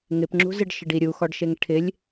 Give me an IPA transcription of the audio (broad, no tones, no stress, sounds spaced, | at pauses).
ŋ ɪ p ŋ͡ǁ ṳ z ɪ ɖ ʃ ɪ ɖ i ɾʲ u x ɔ ɖ ʃ e ŋ ʈʰ ɪ lʲ